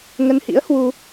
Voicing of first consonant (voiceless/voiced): voiced